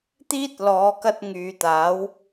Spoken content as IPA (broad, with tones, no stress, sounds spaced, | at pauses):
t̪ iː˥ t̚ l ɔː˨˧ k ɐ˧ t̚ ŋ yː˨ t̪ aː˨˥ w